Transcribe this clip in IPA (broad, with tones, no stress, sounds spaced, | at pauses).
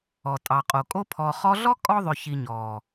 ɔ˨ tʼ ɑ˨ qʼ o˨ kʼ o˧ pʰ ɔ˨ χ ɔ˧ ɮ ɔ˦ kʼ ɔ˦ ðˤ ʏ˨ ç i˨ ɲ ɔ˨